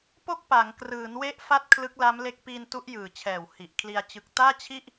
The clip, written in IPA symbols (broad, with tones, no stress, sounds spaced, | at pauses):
p o˥˩ k̚ p a˩˦ ŋ k r ɯː˩˦ n w e˦˥ ʔ f a˥˩ t̚ kʰ l ɯ˦˥ k̚ l a˦˥ m l e˦˥ k̚ p iː˧ n t u˦˥ ʔ j ɯː˨˩ t͡ɕʰ ɛː˨˩ w h i˨˩ ʔ kʰ l i˧ a̯ t͡ɕ ɯ˨˩ k̚ t aː˥˩ t͡ɕʰ i˥˩ ʔ